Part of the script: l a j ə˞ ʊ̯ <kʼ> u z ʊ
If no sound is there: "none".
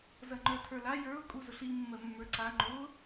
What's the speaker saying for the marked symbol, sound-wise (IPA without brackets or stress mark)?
kʼ